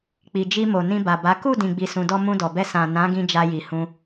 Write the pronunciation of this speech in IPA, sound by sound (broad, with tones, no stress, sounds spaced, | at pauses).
k͡p i˨ d͡ʒ i˧ m o˨ n ĩ˧ b a˨ b a˨˦ k u˦˨ d ĩ˨ ɡ͡b i˧ s ũ˧ d ɔ˦ m ũ˧ d ɔ˨ b ɛ˧ s ã˨ n ã˨˦ ɡ ĩ˧ d͡ʒ a˧ j i˨ h ũ˧